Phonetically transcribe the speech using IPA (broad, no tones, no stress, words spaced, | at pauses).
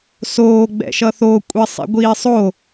soː ɡ͡bɛ̰ʃʌθo kʷʼisˤḭɡʷiːsˤo